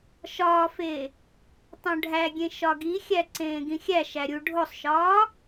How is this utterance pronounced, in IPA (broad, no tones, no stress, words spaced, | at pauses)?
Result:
ʃɒːfe | tˤõɖʱæɡʲẽ ʃɒɡixʲæ ǀẽːɡĩxʲæʃæ ɾʲu ɖʱosˤʃɒː